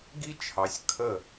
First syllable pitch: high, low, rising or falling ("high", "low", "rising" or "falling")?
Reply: high